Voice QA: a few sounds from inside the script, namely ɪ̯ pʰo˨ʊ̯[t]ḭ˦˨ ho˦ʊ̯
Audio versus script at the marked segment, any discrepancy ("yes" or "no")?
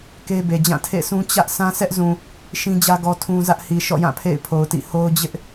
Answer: no